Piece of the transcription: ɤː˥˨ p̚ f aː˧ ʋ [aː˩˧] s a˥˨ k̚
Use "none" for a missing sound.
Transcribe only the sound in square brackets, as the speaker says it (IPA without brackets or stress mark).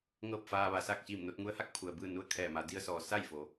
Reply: a˩˧